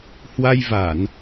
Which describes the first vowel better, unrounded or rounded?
unrounded